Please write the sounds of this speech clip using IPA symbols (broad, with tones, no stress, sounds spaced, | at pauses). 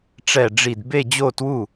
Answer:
ʈ͡ʂ ɛ˥˧ ɖ͡ʐ i˥˧ d b e˥˧ d͡ʑ o˥˧ t w u˥˧